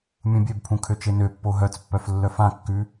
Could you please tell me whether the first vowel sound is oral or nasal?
nasal